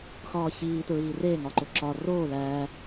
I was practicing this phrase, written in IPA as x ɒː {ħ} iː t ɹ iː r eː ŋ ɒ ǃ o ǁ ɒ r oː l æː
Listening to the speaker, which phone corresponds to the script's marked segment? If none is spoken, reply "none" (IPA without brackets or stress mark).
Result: ç